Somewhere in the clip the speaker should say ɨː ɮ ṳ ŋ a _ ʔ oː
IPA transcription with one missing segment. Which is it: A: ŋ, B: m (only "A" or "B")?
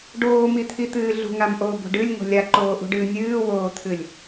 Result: B